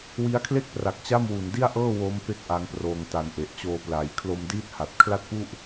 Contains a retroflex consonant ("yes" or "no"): no